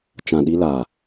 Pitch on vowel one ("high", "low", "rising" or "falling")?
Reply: low